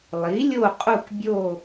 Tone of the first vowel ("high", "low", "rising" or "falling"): rising